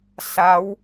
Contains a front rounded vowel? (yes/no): no